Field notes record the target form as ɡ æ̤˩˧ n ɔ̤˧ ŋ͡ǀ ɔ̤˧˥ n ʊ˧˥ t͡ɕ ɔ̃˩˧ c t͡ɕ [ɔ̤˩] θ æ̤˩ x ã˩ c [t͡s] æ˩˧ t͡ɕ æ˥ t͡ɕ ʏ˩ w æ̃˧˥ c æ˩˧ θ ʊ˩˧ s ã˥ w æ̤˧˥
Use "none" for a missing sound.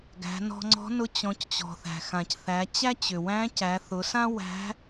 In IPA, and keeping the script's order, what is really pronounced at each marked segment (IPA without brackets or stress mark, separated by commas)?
ɔ̤˩, θ